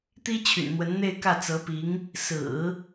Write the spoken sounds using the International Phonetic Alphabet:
t̪i˥ t͡ɕʰy̰˨˩nn̪wə˧˥nn̪e˥˧ɪ̯ kä˥˩t͡sɤ˧˥pi˧˥ŋ | sɹ̩˨˩˦

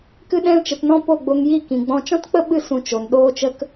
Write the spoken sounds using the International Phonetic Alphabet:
kɨ˧ɗɛ̃˧lt͡ʃə˨tnɔ̃˧ po˦˨ɡ͡bo˧ŋji˦˨ kĩ˨ɡ͡bɔ̃˧ t͡ʃɔ̃˦tk͡pə˦ɓɨ˦˨ sũ˧t͡ʃo˨n ɗoː˧t͡ʃə˧k

